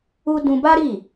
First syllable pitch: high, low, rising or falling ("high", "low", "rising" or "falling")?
high